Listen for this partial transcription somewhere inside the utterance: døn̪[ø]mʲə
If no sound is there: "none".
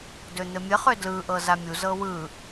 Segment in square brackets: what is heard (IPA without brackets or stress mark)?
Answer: ɘ